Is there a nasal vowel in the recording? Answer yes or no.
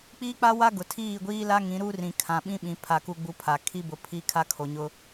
yes